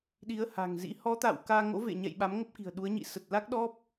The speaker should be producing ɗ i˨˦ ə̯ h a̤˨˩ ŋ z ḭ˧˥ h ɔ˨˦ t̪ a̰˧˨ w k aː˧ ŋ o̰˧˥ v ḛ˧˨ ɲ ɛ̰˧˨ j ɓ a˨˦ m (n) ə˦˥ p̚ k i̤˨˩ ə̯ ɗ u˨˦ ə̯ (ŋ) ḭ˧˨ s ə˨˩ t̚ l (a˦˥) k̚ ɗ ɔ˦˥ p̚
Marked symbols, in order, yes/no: no, no, yes

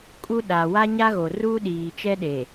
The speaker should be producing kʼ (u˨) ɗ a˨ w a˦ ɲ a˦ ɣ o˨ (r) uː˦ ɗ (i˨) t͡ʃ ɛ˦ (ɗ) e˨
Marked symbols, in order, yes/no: no, yes, no, yes

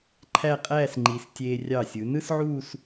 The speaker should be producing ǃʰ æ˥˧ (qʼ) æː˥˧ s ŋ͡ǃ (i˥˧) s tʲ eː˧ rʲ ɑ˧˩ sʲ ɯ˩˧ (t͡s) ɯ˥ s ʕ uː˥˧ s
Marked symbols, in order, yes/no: yes, no, no

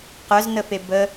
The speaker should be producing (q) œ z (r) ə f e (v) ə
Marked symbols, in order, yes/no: yes, no, no

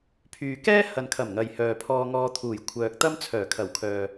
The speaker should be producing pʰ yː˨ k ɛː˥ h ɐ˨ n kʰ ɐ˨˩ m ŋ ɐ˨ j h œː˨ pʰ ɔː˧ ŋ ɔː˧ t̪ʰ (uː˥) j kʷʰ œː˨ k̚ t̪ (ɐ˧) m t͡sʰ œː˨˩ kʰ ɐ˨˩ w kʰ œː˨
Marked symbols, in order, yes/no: no, no

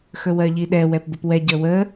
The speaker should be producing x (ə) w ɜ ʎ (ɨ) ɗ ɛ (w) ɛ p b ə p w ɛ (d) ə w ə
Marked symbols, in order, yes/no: no, no, yes, no

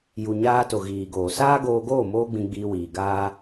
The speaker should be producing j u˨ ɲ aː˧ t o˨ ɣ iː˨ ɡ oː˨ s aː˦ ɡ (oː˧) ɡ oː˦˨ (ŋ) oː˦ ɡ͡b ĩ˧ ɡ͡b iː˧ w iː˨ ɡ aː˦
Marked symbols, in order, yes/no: yes, no

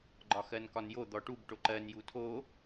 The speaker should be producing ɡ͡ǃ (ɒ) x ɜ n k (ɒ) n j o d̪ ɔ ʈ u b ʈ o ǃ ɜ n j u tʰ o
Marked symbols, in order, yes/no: yes, yes

